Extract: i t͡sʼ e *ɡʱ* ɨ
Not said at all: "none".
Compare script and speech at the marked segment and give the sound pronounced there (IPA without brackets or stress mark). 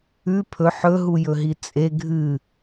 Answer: ɡʱ